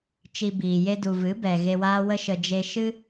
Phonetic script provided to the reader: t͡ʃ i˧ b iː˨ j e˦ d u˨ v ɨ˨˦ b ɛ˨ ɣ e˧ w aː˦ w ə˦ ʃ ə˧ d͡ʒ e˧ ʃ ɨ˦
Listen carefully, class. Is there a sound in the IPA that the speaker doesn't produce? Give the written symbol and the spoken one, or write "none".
none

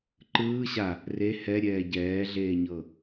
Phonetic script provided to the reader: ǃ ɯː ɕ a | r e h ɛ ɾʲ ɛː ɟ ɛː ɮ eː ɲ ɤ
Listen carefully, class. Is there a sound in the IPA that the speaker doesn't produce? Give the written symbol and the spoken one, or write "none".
none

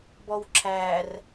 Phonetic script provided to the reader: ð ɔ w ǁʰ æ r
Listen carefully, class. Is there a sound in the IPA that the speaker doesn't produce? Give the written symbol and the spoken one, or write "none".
ð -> b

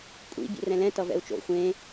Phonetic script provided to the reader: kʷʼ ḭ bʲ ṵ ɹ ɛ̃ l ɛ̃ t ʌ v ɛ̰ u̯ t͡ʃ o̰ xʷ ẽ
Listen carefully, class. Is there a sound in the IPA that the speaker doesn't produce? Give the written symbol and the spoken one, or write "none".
ɹ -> r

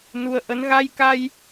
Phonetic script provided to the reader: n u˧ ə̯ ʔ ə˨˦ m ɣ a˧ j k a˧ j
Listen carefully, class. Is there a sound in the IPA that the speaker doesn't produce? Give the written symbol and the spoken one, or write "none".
m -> n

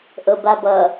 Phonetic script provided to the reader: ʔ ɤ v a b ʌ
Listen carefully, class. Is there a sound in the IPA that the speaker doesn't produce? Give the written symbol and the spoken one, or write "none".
v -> b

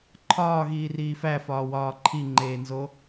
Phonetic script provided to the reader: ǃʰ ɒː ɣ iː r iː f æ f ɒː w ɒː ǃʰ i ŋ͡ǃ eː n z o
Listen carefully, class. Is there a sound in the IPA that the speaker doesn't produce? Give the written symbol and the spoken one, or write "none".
none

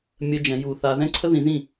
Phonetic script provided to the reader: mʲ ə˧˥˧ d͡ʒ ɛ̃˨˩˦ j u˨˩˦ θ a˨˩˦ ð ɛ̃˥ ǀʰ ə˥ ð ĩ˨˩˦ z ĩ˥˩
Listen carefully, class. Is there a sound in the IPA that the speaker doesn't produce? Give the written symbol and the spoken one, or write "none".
a˨˩˦ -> a˧˥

